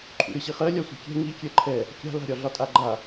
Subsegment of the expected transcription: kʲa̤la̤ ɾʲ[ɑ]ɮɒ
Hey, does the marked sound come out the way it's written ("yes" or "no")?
no